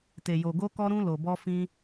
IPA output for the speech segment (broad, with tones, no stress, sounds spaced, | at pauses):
t e˨ j o˨ ɡ o˧ k ɔ˧ ɾ ũ˧ l o˨ b ɔ˧ f ĩ˧